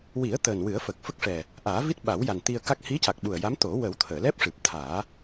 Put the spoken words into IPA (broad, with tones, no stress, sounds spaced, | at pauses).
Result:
w i˨˩˦ ə̯ t̪ əː˨˩ n w ɨ˨˩˦ ə̯ f əː˨˩ k̚ f ə˦˥ k̚ ʂ ɛ˨˩ | ʔ aː˨˩˦ v i˦˥ t̚ ɓ a˨˩˦ w j a˨˩ n t̪ i˧ ə̯ k a˦˥ k̚ h i˧˥ c a˨˩ k̚ ɓ u˨˩ ə̯ j a˧˥ m t̪ o˨˩˦ w ə˨˩˦ w t̪ʰ əː˨˩˨ l ɛ˦˥ p̚ ʂ ɨ˨˩ p̚ t̪ʰ aː˨˩˦